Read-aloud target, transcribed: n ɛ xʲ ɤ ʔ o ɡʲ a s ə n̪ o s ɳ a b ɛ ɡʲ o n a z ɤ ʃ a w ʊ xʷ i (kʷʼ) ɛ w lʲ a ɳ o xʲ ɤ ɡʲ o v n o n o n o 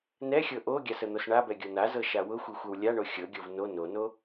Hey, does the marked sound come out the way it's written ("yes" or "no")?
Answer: no